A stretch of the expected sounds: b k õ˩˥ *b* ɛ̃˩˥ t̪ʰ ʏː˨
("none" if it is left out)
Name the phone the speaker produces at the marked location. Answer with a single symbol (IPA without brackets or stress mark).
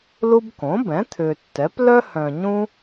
b